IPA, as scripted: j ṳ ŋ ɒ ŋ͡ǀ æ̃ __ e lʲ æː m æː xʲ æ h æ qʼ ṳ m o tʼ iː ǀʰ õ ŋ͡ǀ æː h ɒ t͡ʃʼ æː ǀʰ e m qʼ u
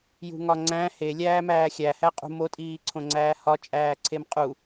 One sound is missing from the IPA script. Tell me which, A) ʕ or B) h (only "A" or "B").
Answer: B